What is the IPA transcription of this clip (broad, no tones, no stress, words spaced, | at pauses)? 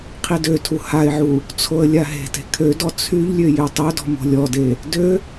qʰidøtʰu haɪ̯ʕu | t͡sʰoə̯lʲaɦe̤te̤ kʰødɔ t͡sʰyʎlʲø jøtˤødɔ̤ mo̤lʲɔde | dø